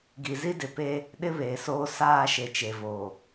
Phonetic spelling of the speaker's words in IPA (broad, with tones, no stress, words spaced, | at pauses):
ɡi˨zi˦ dɪ˨pe˦ | ɗɪ˦βeː˨soː˦ saː˦˨ ʃe˨t͡ʃe˨voː˨